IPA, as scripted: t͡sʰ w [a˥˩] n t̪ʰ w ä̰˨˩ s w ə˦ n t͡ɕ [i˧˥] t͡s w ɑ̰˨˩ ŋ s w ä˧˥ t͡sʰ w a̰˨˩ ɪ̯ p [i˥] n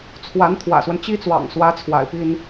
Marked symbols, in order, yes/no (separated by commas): no, no, yes